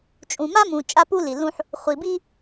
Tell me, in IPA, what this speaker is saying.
t͡ʃʼũ˨ma˦mũ˨ t͡ʃʼa˦pu˦li˨lũ˦ħ | χʷi˨bi˦

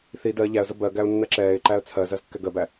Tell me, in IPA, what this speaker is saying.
θi dɜ ʎæə̯zə bɜɡæʊ̯ nːɜǁɛːɪ̯ǃæə̯ t͡sʰɜ zɜzkːɛɡɜbæ

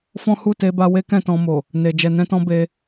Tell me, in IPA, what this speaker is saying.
fɔ̃˦hu˦˨te˧ba˧ we˦kɛ̃˦˨tɔ̃˧mo˨ | ne˨ d͡ʒɛ˨nɛ̃˧tɔ̃˧ be˧

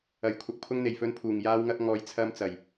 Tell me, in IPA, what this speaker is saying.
ɐ˨˩j kʷʰɐ˧k̚ pʰʊ˧ŋn̪e˨˩jfɵ˨˧n pʰuː˨˩ŋ jaː˧wŋɐ˧k̚ ŋɔː˨jt͡sʰɐ˧mt͡sɐ˨˩j

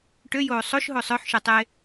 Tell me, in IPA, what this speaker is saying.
ʈøjoː sˤoʃɦo sˤœħʃœtˤe

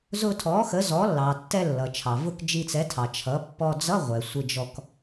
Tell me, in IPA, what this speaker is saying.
zʊ˧ tʰɔ˩˥xə˩˥zɔ˩˥lːɑ˩ tːɛ˧lːʌ˩t͡ʃʰɑ˩vʊ˧k d͡ʒi˧t͡sɛ˩˥tʰɑ˩ t͡ʃʰʌ˩˥pːɔ˧ d͡zʌ˧˥˧ ʁʷɛ˩sʷɪ˧d͡ʒɔ˧k

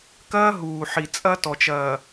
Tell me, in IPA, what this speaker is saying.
kɐː˦ ɦuː˨ ħi˨ t͡sʼɐː˦tɔ˨t͡ʃɐː˨

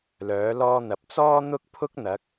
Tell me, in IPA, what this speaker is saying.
lœː˨˥lɔː˥n̪ɐ˨˥p̚ t͡sɔː˥n̪ʊ˥k̚pʰʊ˥k̚ n̪ɐ˨˥k̚

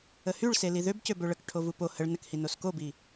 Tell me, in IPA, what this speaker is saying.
əhyɭse liðøbcø bøɭək ʈʰovupo həɭ nəkhinos kobi

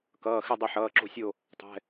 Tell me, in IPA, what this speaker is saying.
kʌː˩˧˩xɪ˦˨ dˤɐ˦˨ħʌː˩˧˩ǁo̤˦˨sʲo˦˨ | tˤɛ̤˩˧˩

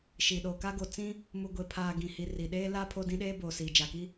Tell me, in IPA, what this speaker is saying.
ʃi˨ɗo˨ka˦ ɡo˨t͡sĩ˦ | mu˨ɡʷe˨pʰaː˨ ɡĩ˨ hi˨ri˨ɗeː˦ la˦ pʰo˦dĩ˦ɗeː˦ boː˨siː˨ d͡ʒa˨ki˦

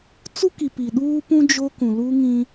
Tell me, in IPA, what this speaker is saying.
t͡su˦ki˨ pi˨ɗuː˦pũ˦ d͡ʒo˦kũ˨lu˦ ŋĩ˦

